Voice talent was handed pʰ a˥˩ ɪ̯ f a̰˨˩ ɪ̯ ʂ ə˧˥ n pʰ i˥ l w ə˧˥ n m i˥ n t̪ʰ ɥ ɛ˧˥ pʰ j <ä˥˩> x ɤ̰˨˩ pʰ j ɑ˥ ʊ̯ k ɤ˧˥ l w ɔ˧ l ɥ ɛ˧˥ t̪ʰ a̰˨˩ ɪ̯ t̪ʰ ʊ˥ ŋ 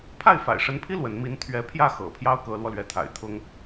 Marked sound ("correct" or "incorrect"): correct